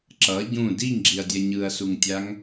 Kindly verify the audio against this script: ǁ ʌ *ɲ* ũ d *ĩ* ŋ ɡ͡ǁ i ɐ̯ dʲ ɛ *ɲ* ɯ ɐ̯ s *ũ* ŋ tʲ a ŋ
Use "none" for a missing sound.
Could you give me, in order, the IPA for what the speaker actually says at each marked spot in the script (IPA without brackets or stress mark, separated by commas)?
ɟ, i, ɲ, u